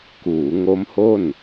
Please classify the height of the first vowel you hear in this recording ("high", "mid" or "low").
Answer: high